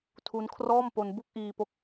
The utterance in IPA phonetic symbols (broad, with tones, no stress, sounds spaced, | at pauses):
tʰ u˦˥ n kʰ r ɔː˥˩ m p o˧ n b u˥˩ k̚ ʔ iː˧ p o˦˥ k̚